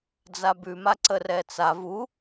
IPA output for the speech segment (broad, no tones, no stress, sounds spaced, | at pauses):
d͡z a b ʉ m a ǀ ə r ɛ t͡s a v u